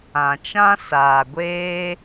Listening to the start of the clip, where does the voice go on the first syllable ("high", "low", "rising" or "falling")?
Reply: low